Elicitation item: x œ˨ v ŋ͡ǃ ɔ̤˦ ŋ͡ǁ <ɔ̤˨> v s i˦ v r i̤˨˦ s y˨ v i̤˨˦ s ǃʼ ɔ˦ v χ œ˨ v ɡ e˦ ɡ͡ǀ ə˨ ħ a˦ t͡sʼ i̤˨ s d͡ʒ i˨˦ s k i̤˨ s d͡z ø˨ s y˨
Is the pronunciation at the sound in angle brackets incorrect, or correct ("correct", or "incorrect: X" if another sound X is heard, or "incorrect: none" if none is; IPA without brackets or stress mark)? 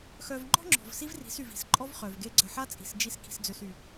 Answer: correct